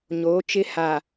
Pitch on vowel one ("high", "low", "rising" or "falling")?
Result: rising